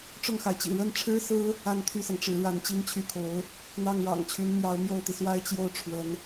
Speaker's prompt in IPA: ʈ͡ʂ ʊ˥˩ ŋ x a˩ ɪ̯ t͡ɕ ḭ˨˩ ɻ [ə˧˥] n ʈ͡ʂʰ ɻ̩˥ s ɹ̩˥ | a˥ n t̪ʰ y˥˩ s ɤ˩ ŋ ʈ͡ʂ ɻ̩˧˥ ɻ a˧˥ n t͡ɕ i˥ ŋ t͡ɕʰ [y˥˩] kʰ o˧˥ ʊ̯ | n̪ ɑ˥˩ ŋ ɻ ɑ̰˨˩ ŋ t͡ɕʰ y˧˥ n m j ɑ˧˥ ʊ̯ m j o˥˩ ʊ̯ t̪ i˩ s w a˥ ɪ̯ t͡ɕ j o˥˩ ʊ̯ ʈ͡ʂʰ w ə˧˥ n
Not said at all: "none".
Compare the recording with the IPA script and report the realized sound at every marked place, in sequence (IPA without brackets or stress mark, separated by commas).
ə˥˩, y˥˩